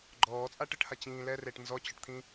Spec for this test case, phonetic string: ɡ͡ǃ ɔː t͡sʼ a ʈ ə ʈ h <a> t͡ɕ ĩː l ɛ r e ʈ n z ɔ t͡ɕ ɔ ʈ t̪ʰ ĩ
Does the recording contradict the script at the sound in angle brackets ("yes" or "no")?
no